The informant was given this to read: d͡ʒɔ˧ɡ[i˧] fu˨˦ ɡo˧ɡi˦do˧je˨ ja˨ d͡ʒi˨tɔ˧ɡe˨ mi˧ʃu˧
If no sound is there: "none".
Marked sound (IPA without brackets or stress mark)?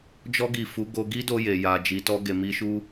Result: i˨